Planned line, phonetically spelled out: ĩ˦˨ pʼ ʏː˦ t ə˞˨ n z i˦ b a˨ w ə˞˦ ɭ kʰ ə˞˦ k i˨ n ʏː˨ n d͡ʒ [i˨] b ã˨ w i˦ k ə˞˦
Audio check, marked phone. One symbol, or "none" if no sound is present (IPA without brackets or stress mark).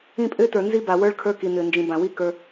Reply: ĩ˨